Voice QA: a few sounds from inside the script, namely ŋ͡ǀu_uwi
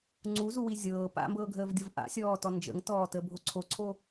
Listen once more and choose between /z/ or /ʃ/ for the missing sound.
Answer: z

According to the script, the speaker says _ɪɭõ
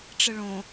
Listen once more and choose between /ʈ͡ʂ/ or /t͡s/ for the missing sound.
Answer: ʈ͡ʂ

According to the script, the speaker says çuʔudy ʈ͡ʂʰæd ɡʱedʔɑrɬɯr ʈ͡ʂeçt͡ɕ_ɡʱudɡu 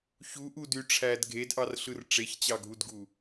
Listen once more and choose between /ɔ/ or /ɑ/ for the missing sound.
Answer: ɑ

